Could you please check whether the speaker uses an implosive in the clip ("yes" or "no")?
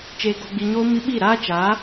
yes